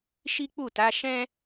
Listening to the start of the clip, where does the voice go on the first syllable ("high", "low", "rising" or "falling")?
high